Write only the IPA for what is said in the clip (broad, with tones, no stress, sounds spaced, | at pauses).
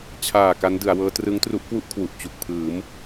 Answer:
t͡ɕʰ aː˨˩ k a˦˥ n d ɯ˩˦ a̯ w ɤː˦˥ t r ɯ˦˥ ŋ t r u˦˥ ʔ k w u˥˩ ʔ kʰ w u˨˩ ʔ t͡ɕ u˨˩ k̚ pʰ ɯː˩˦ m